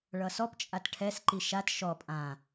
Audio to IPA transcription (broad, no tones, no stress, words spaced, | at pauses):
ɭʌsɔpt͡ʃʼat ʈʰɛsǃi ʃat ʃɔ pʼã